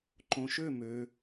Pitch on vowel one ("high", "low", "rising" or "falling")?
low